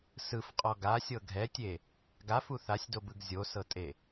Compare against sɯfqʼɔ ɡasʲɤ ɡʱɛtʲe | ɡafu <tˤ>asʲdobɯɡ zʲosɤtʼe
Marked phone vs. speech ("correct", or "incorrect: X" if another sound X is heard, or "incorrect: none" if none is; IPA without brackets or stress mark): incorrect: θ